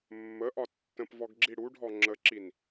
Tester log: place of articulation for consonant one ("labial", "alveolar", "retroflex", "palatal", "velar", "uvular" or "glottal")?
labial